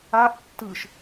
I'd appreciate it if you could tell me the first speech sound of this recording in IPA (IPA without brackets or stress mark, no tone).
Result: a